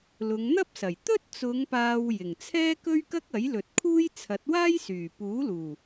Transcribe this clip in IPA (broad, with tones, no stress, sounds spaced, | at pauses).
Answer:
l ʊ˨˧ ŋ n̪ ɐ˥ p̚ s ɐ˨˩ j t̪ ɵ˥ t̚ t͡s ʊ˨˧ ŋ p aː˨ w j ɪ˨˩ ŋ t͡sʰ ɛː˥ k ɵ˥ ɥ k ɐ˥ k̚ ɐ˨˥ j l ɵ˨ t̚ kʰ uː˥ j t͡sʰ ɐ˨˥ t̚ w aː˥ j s yː˨˩ p uː˨˥ l uː˨˩